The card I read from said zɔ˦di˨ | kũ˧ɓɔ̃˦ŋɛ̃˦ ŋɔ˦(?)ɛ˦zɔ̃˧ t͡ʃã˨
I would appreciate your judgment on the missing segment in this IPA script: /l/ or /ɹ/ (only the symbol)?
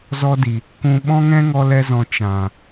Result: l